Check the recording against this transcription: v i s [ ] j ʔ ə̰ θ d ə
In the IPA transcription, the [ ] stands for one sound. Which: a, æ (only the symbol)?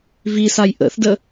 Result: a